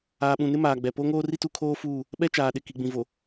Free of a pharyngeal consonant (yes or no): yes